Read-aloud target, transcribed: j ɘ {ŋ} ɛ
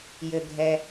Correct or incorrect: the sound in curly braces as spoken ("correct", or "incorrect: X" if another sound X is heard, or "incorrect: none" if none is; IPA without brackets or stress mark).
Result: incorrect: ɡʱ